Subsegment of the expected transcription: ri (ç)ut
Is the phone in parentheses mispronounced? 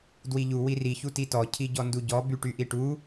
no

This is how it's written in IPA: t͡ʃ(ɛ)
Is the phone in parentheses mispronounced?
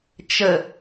yes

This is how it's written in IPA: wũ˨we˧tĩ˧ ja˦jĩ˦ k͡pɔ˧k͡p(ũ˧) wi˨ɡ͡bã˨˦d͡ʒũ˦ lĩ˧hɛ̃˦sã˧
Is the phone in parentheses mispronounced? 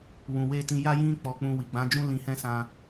no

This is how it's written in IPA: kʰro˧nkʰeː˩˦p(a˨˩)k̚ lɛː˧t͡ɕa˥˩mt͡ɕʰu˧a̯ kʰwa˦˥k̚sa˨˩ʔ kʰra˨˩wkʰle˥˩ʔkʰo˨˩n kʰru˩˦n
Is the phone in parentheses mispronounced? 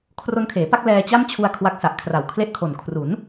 yes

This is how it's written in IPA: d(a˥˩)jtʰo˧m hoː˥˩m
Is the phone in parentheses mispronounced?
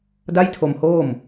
no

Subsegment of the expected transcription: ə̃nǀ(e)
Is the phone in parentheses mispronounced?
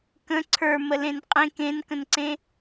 yes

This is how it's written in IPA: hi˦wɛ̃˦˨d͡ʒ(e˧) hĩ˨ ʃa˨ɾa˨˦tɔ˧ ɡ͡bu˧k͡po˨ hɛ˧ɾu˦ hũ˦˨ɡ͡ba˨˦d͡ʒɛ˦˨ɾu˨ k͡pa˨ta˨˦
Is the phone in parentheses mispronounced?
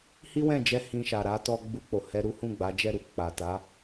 yes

